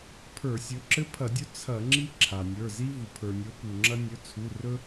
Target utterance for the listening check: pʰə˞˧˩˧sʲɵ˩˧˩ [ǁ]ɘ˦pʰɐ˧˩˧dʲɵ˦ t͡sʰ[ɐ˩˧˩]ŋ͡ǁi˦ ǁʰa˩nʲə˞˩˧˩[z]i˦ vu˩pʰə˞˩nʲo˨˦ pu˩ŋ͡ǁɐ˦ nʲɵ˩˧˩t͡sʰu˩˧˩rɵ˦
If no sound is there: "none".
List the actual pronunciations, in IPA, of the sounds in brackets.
ǁ, ɐ˧˩˧, z

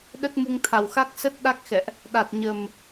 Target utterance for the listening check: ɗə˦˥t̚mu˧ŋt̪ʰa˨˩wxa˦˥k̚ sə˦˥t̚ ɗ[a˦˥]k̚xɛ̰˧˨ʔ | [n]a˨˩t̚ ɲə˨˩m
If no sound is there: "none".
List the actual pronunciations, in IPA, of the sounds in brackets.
a˦˥, ɗ

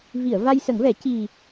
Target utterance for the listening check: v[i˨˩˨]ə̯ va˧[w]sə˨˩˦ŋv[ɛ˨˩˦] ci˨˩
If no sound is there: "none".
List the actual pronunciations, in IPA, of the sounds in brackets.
i˨˩˨, j, ɛ˨˩˦

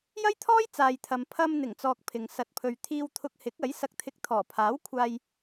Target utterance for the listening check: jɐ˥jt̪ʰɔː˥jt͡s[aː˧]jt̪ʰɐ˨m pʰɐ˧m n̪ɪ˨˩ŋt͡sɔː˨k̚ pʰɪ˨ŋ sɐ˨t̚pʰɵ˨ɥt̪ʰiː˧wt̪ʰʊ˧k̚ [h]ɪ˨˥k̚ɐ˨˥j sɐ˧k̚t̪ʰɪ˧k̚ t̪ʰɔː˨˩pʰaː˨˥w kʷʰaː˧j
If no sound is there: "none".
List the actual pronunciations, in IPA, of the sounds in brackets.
aː˨, h

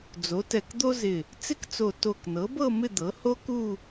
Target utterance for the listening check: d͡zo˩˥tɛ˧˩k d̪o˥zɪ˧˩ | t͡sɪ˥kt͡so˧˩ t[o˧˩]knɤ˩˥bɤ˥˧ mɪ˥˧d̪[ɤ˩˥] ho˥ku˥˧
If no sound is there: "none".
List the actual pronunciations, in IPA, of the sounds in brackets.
o˧˩, ɤ˩˥

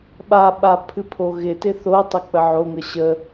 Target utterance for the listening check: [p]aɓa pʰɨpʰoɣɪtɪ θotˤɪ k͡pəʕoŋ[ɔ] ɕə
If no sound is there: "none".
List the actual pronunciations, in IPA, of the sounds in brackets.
ɓ, ə

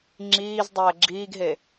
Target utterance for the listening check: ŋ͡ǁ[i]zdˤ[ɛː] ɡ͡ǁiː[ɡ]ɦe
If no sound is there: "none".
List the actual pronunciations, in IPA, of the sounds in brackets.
iː, ɛː, ɡ

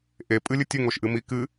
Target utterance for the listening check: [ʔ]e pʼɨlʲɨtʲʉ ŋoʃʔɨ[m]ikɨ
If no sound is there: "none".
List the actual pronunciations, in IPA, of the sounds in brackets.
ʔ, m

